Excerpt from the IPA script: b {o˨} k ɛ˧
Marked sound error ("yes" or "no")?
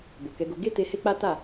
no